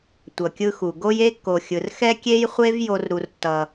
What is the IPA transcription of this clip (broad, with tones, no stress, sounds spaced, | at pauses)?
tʷ ʌ˨ kʲ ɯ˦ x u˨ ɡ o˦ j e˦ kː o˨ xʲ ɯ˨ r x ɛ˦ kʲ e˦ j χʷ e˦ v j o˦ r ɾ u˦ r tː ʌ˦